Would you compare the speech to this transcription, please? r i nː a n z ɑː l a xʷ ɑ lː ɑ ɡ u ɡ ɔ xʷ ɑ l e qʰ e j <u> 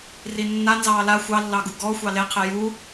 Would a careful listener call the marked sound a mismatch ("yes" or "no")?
no